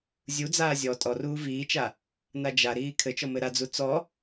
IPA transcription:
zʲ u d͡z aː zʲ ɔ tʼ ɔ r uː v iː t͡ʃ a | n a d͡ʒ a ɾ iː kʰ ɘ t͡ʃ ɔ m ɘ ɾ a d͡z u t͡s ɔ

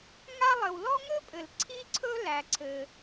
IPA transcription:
ŋ a˥ lˠ ɘ˩ w l ɔ˥ ŋ ɵ˥ pʼ ɘ˩ l ǀʰ i˥ ǀʰ ɵ˥ l æ˩ ǀʰ ɘ˩

